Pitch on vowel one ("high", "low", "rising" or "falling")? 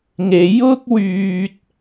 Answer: rising